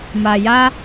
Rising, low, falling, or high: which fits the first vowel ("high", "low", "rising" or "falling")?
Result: low